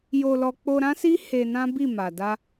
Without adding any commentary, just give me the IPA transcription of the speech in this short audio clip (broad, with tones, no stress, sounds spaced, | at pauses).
j o˧ l ɔ˧ k͡p o˧ ɾ ã˦ s i˦ h e˧ n ã˦ b i˦˨ m a˨ d a˧